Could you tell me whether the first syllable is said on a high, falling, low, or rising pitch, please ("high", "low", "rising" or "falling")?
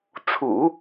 low